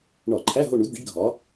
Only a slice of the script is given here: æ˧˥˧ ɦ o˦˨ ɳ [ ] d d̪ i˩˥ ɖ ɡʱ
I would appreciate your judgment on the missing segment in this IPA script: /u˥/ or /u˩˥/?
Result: u˩˥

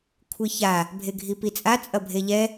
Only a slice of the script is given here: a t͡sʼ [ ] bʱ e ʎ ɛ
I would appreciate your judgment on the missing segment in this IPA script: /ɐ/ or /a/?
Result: ɐ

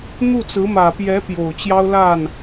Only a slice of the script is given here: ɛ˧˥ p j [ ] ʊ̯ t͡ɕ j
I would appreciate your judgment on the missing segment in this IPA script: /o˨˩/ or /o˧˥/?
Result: o˨˩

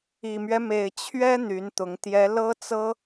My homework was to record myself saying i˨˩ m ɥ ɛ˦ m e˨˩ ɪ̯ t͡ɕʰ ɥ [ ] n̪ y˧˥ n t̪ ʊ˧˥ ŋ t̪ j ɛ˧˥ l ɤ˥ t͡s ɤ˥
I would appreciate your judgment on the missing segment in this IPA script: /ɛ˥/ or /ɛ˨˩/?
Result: ɛ˥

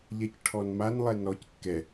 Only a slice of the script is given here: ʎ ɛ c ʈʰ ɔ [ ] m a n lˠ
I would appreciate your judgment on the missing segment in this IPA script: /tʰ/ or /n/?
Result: n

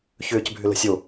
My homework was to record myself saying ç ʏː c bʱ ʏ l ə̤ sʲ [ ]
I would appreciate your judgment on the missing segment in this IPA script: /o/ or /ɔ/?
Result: o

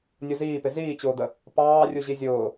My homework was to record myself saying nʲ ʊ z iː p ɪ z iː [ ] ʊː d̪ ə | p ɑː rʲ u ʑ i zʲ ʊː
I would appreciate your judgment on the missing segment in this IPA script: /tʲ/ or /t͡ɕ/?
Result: t͡ɕ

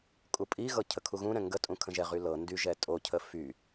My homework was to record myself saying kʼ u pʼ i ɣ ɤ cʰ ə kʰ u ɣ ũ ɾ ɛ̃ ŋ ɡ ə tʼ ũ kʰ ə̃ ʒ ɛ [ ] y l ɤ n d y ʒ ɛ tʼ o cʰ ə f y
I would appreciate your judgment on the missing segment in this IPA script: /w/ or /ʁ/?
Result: ʁ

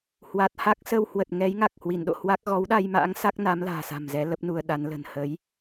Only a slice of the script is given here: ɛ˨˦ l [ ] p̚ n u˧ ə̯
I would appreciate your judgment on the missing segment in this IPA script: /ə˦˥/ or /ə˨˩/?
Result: ə˦˥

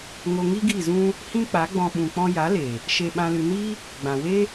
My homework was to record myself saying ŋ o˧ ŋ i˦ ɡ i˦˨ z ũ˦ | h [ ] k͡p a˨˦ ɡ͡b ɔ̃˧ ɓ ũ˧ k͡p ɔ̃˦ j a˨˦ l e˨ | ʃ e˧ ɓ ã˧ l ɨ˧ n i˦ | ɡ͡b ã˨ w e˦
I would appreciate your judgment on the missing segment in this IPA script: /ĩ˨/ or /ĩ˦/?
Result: ĩ˦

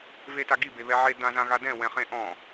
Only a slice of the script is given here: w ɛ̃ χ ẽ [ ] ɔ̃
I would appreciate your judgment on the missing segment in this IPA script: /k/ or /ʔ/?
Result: ʔ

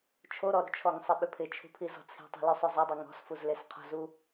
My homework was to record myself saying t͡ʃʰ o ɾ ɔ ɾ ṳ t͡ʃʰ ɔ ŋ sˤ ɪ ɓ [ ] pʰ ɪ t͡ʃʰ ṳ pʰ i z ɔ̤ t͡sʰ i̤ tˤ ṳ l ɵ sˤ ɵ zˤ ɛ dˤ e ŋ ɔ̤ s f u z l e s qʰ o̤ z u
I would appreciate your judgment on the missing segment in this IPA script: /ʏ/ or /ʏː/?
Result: ʏ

